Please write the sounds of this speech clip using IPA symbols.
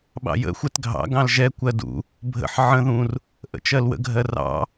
ɓ ɑ̰ j ə̰ xʷ ɛ t ɡʱ ɑ̰ ɡ ɑ̃ l ʒ ɛ kʷ ɜ d ṵ | bʱ ə̰ ħ ʕ ə̃ ð ũ r | ʔ ə̰ t͡ʃ ɜ l w ə̰ ɡʱ ɜ r ɑ̰

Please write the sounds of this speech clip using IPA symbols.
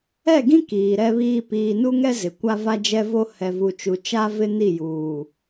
ɛ˦˨ ɡ ĩ˦ k iː˨ ɾ ɛ˦ β iː˦ p iː˨ n u˦ ŋ ɛ˦ z ɪ˨ kʷ a˦ v a˦ d͡ʒ ɛ˦ v o˦ h ɛ˨ v u˨ t͡ʃ u˨ t͡ʃ a˦ v ɪ˦ n i˦˨ j uː˨

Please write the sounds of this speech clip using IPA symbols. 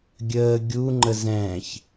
ɡʲ əː ɡʲ u ŋ͡ǃ ə z ɛ̃ː ç

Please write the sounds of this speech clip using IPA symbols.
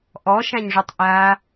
ʔ ɔ ʃ ã ɲ ʐ y tˤ ʔ a

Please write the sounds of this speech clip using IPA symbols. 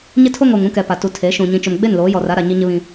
ɲ ɪ˦ tʰ o˦ ŋ o˨ ŋ ũ˦ k ɛ˨ p a˨ t u˨ tʰ e˨˦ ʃ ũ˨ ɲ ĩ˨ t͡ʃ ʊ˨ m ɡ͡b e˦˨ n l oː˨˦ j ɔ˨ r a˦ ɾ a˨ ɲ i˦ ɲ ɪ˦ β ĩ˦

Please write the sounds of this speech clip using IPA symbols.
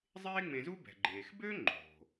zˤ eː˥ ŋ͡m ẽ˧ z u˥ b ɛ̤˩ ɡ͡ǃ eː˩ x b ø˥ ŋ͡ǃ o̤˩

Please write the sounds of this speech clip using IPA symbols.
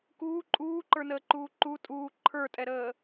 k uː ǃʼ uː ǃ ə˞ n əː ǃ uː ǃ u tʼ uː ǃʰ ə˞ tʼ ɛ ɾ əː

